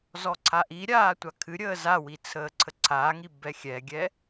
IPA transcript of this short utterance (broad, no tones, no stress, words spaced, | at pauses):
zɔǀʰaʔiɾʲaː tʷakʰɨɾʲəː zawi t͡sʰəːǀʰəǀʰaːŋi bɛxʲɛɡʲɛ